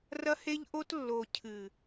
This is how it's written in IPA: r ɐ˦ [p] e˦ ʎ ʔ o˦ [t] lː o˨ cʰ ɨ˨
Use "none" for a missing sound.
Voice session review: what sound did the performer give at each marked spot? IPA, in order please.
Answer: h, t

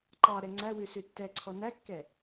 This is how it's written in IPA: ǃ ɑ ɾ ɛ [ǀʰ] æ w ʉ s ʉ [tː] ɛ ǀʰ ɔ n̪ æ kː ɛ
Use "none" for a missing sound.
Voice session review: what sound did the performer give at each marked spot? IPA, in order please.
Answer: ŋ͡ǀ, tː

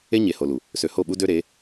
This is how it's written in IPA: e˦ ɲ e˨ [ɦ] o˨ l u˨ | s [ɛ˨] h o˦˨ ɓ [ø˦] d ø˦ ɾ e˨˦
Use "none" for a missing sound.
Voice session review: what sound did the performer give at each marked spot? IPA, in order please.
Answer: h, ø˨, u˦

